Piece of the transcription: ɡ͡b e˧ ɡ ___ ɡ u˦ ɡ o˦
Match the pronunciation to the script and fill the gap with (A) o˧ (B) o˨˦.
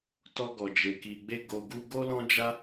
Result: A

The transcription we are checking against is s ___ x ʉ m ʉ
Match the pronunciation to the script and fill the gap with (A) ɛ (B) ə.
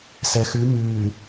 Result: A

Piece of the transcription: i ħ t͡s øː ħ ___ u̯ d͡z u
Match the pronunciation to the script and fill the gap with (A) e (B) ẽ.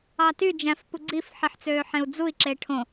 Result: B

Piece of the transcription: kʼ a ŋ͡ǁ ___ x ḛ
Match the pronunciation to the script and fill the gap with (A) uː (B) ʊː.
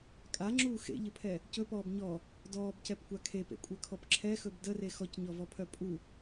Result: A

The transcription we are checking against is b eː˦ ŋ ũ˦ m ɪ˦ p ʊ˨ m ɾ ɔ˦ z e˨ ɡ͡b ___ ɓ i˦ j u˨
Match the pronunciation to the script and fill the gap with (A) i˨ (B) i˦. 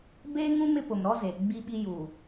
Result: B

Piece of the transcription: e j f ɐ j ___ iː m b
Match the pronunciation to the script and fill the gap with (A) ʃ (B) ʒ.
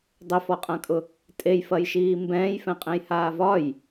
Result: A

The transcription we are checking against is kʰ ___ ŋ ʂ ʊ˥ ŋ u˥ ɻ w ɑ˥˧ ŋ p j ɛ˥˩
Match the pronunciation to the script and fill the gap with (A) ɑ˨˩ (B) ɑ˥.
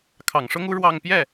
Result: A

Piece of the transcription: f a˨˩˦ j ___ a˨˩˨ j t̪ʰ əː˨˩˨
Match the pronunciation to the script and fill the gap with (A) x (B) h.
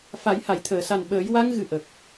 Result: B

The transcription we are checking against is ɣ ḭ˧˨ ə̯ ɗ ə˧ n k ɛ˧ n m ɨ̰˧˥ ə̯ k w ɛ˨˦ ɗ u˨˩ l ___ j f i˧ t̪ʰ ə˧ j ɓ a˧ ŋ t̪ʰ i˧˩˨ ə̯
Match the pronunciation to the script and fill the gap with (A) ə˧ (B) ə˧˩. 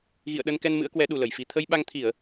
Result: B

